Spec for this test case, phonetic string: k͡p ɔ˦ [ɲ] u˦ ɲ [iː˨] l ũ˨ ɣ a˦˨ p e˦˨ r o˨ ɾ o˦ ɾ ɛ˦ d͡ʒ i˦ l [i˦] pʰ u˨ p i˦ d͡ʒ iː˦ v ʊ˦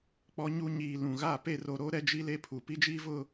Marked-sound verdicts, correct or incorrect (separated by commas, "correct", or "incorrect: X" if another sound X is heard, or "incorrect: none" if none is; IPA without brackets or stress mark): correct, correct, incorrect: e˦